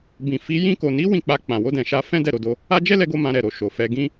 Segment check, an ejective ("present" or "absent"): absent